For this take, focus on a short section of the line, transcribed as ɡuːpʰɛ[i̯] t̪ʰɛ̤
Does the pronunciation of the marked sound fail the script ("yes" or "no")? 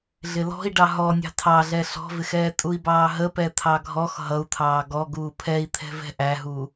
no